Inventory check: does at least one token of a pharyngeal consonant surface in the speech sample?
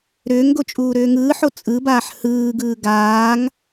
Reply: yes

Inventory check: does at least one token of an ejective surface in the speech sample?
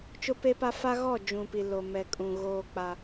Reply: yes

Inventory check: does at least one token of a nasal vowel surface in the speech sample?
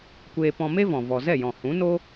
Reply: yes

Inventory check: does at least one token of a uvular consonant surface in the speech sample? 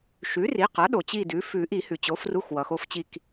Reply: yes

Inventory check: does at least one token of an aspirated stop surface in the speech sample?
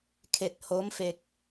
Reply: yes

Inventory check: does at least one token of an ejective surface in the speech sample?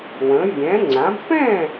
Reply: no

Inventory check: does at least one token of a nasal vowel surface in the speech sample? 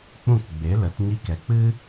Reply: yes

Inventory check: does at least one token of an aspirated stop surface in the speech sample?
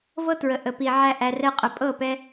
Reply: no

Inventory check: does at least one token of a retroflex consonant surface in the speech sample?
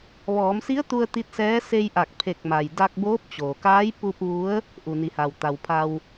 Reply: no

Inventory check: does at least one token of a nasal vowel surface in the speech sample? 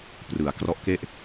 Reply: no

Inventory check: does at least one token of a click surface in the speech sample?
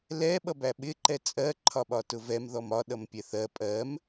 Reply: yes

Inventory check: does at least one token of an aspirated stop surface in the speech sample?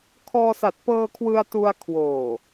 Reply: yes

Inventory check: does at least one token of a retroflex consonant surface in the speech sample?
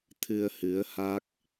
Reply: no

